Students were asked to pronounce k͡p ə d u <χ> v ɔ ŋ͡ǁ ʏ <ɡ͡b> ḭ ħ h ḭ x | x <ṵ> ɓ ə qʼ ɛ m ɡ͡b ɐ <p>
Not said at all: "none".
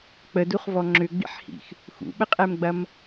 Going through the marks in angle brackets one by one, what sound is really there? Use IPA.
χ, ɡ͡b, ṵ, m

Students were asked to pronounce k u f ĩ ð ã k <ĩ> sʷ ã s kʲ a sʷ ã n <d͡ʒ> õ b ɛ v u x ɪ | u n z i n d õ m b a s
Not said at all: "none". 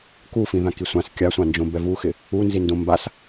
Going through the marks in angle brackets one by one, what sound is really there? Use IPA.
i, d͡ʒ

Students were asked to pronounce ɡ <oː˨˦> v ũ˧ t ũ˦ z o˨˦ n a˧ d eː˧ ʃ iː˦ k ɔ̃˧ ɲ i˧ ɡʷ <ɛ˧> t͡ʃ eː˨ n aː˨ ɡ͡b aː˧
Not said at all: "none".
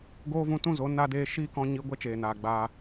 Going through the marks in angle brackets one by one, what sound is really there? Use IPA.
oː˦, ɛ˦

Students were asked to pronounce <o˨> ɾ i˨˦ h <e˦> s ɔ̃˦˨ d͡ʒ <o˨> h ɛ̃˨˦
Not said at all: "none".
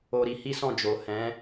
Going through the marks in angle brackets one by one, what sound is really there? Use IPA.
o˨, i˦, o˨

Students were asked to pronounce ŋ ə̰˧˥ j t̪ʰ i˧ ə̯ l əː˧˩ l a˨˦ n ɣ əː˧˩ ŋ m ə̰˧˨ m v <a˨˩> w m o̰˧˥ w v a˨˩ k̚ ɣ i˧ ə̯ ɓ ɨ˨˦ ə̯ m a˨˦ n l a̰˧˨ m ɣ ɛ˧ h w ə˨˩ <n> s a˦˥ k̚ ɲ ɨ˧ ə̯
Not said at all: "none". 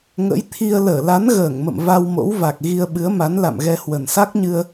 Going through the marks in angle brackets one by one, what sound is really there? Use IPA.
a˧, n

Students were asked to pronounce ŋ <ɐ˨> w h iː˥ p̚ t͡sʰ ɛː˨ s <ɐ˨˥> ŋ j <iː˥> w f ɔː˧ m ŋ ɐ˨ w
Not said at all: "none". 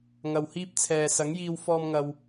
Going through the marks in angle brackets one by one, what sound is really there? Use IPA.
ɐ˨, ɐ˨˥, iː˧

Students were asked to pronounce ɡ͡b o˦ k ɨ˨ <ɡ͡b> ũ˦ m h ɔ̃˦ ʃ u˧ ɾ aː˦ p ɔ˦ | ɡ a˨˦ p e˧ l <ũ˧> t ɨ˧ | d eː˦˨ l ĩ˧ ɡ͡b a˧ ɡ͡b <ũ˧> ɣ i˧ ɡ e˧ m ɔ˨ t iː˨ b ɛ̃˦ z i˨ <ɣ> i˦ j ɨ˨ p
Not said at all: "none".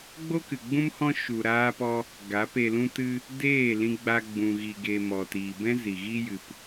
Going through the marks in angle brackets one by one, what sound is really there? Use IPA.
ɡ͡b, ũ˦, ũ˧, ɣ

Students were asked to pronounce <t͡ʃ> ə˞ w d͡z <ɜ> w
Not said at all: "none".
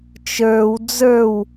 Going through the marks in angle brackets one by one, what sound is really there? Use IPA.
t͡ʃ, ə˞

